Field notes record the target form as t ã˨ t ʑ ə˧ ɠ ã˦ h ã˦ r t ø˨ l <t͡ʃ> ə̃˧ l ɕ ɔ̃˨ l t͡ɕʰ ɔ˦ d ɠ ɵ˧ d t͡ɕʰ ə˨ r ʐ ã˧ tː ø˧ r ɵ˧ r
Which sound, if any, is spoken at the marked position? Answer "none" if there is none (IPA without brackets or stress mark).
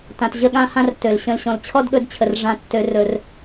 ɕ